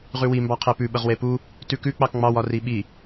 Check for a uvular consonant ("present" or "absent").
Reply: present